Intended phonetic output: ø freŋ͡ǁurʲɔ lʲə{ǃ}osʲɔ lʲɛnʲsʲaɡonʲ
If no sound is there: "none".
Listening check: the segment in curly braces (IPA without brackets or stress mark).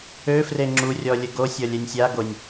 ɡ